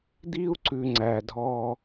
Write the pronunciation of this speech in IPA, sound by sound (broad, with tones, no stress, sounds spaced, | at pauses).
d̪ i˦ u̯ ǀ ʉ˨ ŋ͡ǀ æ˩ dʱ ɔ˨